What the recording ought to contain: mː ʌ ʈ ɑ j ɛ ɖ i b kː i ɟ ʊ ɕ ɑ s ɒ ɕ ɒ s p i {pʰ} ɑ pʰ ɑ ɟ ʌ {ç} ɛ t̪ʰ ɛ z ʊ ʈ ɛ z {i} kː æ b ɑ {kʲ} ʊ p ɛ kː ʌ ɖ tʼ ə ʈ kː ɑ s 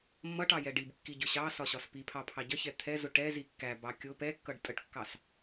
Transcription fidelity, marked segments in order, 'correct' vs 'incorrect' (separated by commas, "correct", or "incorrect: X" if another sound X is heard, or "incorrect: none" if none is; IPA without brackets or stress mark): correct, correct, correct, correct